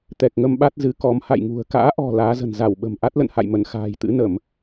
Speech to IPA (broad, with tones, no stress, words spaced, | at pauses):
t̪ɛ˨˩k̚ŋə˧mɓa˦˥t̚ zɨ˨˦kɔ˨˦m ha̰˧˨jŋṳ˨˩ə̯ ka̰ː˧˥ʔɔ̤˨˩ laː˨˦zə̤˨˩n za˧˩wɓə̤˨˩m ʔa˦˥t̚lə̰˧˨nha̰˧˨jmə˧˩n xa̤ː˨˩jt̪ɨ̰˧˥nə˧˩˨m